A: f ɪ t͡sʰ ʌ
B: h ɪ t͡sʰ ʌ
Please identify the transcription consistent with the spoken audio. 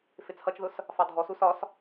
A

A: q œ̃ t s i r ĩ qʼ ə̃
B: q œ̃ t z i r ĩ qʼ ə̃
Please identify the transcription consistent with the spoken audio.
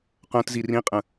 B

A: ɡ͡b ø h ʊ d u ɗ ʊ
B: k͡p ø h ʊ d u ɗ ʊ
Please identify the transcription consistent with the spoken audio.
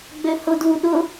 A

